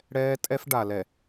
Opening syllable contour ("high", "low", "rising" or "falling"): high